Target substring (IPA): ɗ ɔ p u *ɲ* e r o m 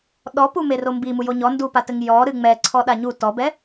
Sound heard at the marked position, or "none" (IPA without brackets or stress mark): m